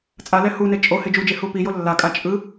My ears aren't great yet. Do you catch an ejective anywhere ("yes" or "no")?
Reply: yes